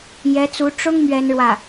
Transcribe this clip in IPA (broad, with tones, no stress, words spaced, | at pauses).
jɛ˧˥t͡su˧˥ ʈ͡ʂʊ˥ŋ mɥɛ˥nɻwä˥˩